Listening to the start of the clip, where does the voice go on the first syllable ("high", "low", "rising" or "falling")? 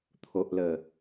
low